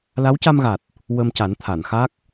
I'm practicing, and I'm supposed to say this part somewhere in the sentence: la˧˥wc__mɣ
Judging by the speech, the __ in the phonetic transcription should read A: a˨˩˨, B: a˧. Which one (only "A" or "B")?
B